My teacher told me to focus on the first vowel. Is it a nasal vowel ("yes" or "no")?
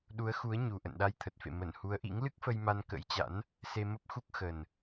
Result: no